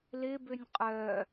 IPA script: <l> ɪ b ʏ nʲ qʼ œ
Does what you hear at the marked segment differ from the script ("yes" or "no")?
no